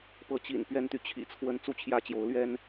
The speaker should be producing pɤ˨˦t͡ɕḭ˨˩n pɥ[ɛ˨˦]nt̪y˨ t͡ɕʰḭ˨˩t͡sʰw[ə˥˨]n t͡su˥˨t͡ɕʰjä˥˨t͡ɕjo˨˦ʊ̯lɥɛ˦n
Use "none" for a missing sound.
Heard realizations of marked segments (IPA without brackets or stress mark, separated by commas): ɛ˦, ə˨˦